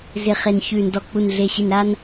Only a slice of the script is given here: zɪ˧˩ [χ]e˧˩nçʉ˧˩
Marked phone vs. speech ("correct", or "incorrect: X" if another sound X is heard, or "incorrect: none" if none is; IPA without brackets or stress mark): correct